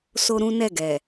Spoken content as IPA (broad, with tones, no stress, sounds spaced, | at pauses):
s o˦ ɾ ũ˦ n ɛ˦˨ ɡ ɛ˨